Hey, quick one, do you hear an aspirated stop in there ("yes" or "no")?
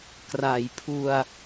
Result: yes